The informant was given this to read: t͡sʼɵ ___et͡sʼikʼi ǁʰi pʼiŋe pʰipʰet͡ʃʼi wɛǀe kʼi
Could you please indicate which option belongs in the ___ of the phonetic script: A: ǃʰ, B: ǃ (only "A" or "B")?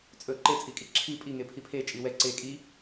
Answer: B